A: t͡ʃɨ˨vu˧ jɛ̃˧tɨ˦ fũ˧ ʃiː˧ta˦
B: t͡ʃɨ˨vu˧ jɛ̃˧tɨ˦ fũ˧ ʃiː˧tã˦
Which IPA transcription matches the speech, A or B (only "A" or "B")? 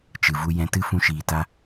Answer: A